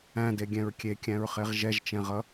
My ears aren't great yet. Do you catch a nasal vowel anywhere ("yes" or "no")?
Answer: yes